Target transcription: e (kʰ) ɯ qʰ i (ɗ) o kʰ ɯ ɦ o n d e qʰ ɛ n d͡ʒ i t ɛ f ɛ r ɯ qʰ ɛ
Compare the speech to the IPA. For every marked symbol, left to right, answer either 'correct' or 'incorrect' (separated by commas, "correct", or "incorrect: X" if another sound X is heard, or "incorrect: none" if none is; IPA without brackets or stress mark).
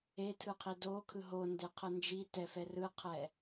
incorrect: tʰ, incorrect: d